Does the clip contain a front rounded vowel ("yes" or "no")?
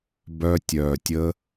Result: yes